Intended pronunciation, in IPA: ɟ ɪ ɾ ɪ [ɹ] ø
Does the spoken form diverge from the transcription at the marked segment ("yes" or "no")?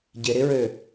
no